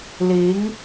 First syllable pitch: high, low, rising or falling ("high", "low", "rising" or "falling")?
rising